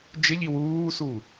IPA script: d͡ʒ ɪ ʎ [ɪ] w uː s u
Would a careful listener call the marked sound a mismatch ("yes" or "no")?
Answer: yes